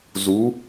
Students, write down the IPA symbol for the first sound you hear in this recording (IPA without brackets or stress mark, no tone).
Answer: z